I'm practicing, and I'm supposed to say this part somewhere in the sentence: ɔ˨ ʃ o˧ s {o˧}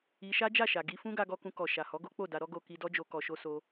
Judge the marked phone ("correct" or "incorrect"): correct